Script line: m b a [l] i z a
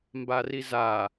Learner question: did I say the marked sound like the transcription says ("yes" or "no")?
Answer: no